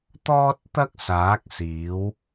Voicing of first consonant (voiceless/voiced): voiceless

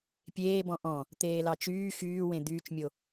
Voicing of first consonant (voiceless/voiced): voiceless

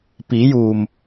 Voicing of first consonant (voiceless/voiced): voiceless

